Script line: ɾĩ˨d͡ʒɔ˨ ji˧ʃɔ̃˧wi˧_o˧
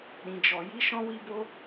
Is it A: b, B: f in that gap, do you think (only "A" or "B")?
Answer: A